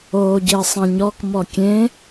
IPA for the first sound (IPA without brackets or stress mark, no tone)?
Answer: oː